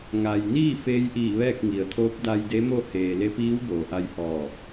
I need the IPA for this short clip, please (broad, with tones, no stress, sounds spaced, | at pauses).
ŋ a˩ j n iː˥˨ f eː˧˥ j ʔ iː˧˩ ʋ ɛː˥˨ k̚ ŋ i˩˧ ə̯ t̪ʰ oː˧˥ p̚ d a˧ j d e˧˥ m o˥˨ h eː˩ l e˧˥ p iː˧˥ w b oː˩˧ ʔ a˧ j h ɔː˧˩